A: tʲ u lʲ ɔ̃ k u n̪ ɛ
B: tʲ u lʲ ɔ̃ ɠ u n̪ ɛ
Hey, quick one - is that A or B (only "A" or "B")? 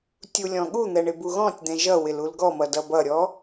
B